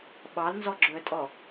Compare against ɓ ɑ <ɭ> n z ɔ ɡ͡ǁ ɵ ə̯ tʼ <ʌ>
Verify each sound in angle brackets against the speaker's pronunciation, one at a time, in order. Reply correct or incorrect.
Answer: incorrect, incorrect

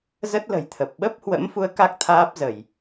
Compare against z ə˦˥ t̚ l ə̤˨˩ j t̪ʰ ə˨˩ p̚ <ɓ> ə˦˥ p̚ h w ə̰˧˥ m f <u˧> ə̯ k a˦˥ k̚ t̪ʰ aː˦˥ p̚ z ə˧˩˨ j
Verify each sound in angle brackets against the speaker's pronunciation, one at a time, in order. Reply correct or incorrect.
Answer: correct, correct

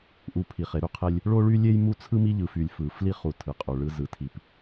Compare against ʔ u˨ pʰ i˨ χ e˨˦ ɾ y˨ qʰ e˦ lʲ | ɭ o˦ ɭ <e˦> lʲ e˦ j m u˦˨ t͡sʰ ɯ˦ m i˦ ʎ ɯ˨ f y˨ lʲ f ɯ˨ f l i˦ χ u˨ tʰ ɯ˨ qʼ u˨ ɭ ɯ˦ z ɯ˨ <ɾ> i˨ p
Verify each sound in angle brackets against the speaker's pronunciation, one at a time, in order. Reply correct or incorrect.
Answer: incorrect, incorrect

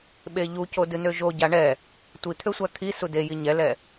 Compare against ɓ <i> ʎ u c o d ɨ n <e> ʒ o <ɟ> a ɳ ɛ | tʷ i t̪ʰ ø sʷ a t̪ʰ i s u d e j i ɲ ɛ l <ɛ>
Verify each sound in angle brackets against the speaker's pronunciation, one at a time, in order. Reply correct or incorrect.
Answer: incorrect, incorrect, correct, correct

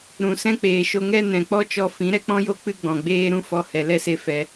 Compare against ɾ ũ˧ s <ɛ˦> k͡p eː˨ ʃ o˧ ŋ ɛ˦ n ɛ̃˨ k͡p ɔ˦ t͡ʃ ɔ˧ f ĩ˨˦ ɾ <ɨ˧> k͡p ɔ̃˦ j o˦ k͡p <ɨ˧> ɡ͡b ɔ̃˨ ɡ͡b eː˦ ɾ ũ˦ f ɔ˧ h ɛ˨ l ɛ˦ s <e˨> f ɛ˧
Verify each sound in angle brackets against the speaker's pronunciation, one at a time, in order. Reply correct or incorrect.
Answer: incorrect, incorrect, incorrect, incorrect

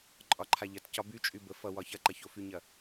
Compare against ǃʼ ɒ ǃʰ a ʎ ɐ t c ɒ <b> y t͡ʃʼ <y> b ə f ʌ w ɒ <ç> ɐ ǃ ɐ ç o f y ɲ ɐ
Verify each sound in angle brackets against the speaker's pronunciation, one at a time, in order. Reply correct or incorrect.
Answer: correct, correct, correct

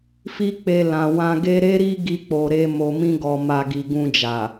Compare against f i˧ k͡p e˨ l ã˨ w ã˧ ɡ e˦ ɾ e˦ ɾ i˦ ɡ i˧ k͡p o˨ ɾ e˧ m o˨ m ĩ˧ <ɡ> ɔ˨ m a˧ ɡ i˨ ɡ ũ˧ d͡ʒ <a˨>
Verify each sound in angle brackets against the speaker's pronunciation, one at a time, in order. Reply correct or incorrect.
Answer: correct, correct

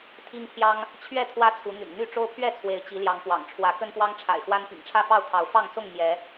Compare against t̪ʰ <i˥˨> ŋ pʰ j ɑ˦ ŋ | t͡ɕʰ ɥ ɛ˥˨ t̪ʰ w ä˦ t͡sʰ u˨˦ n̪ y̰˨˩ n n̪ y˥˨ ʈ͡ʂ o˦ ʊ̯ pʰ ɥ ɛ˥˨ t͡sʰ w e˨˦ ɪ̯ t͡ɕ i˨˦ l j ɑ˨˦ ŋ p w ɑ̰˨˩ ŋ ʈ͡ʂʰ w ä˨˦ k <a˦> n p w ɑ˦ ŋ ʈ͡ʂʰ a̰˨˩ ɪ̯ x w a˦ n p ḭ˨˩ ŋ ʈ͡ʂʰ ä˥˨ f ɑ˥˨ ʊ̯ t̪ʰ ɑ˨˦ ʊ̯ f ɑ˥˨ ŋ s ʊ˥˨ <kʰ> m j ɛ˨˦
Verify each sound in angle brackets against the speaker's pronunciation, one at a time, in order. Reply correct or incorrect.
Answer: incorrect, incorrect, incorrect

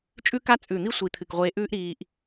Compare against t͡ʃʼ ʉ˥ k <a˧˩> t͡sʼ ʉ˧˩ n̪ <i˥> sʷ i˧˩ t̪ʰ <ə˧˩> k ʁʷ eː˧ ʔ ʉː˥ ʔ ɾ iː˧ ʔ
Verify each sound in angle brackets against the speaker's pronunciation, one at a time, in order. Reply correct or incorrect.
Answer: incorrect, correct, incorrect

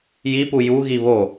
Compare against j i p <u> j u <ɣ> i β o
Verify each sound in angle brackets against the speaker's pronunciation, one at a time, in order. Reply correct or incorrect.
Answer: correct, correct

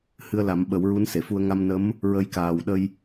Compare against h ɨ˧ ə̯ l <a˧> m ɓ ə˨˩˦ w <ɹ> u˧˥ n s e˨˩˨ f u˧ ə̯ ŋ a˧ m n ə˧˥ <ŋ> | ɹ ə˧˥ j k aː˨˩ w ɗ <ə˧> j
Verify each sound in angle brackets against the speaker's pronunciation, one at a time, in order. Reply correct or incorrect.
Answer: incorrect, correct, incorrect, correct

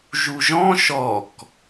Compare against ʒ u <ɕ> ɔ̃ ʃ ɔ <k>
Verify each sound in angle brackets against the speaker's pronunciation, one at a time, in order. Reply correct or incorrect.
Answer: incorrect, correct

